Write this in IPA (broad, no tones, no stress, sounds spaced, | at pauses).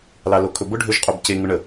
l ɑ l o kʰ ɵ b ʊ ɖʱ ø ʒ qʼ o b c e ŋ ʊ ɳ ə